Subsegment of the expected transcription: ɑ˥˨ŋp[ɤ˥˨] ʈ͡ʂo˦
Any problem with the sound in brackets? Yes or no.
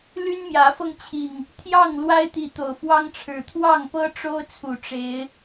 yes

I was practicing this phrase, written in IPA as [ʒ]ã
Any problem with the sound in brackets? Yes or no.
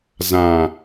yes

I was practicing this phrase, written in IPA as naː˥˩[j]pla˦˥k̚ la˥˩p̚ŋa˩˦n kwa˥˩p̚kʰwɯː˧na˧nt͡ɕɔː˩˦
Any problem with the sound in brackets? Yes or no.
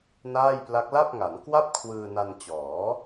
no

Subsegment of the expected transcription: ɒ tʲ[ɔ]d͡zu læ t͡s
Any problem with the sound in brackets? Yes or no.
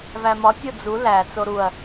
yes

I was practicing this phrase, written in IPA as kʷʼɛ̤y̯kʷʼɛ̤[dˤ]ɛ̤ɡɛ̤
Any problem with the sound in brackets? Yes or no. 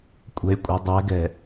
no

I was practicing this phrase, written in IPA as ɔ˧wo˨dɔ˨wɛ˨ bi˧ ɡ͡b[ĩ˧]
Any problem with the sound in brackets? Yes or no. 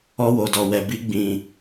yes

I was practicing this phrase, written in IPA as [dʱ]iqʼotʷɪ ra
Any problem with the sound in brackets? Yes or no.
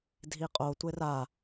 no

